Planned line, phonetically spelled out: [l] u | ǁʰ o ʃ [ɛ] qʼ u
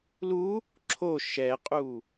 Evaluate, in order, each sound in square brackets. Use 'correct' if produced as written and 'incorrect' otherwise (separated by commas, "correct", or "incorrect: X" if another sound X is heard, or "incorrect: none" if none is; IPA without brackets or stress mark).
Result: correct, correct